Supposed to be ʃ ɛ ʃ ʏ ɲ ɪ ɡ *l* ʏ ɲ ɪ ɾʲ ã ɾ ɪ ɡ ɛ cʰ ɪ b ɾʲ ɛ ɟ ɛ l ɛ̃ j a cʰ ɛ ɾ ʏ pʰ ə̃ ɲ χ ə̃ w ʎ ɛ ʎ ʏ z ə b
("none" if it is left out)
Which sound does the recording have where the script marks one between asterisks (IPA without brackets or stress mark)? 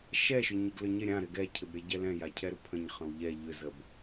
l